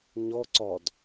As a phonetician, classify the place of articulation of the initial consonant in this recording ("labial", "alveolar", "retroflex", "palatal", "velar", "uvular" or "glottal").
palatal